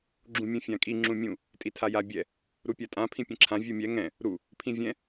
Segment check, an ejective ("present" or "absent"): present